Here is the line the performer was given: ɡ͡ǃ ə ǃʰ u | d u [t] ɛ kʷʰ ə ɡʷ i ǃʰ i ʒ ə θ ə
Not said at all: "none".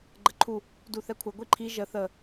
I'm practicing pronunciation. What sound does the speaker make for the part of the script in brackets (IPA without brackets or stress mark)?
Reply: θ